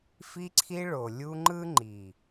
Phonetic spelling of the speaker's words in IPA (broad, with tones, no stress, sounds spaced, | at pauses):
f i˧ ǀʰ i˧ ɭ o˨ lʲ u˧ ŋ͡ǃ ɯ˦ ŋ͡ǃ i˨